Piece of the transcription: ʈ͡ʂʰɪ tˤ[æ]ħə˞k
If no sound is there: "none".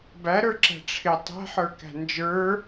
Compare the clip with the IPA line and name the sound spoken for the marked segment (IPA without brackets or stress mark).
æ̤